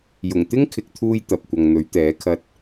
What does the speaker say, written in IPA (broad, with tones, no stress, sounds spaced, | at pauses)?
j ʊ˨˩ ŋ t̪ ɪ˥ ŋ kʰ ɪ˨ k̚ t̪ʰ uː˧ j t̪ ɐ˨ p̚ kʷ ɐ˨ ŋ n̪ ɵ˨˥ ɥ t̪ ɛː˨˥ kʰ ɐ˨ t̚